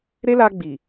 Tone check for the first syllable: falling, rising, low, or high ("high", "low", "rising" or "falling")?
high